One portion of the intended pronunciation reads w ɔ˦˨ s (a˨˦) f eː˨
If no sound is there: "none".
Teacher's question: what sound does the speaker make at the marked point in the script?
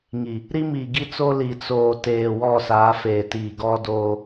a˨˦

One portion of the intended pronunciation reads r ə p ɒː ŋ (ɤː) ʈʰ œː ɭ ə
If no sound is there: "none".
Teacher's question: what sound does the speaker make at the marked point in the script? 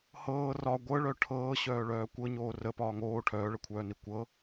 oː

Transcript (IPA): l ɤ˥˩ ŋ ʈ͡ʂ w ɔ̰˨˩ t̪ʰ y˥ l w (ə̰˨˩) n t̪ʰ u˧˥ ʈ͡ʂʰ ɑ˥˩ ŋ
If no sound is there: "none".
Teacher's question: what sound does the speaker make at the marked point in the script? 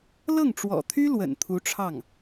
ə̰˨˩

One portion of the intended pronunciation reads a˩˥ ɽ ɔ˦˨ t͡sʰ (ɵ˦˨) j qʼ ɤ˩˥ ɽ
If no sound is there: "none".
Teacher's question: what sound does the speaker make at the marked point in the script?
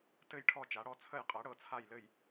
ə˦˨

